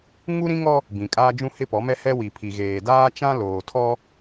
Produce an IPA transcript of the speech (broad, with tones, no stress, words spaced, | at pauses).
ŋu˦ɾĩ˦ŋɔ˦ | bĩ˨kʼaː˦d͡ʒũ˦ hɪ˦pɔ˨˦mɛ˦ hɛ˦wi˨pʰi˨ ɣeː˨daː˦t͡ʃã˦ loː˨tʰɔ˦